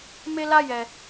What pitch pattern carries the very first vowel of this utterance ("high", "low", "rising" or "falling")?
high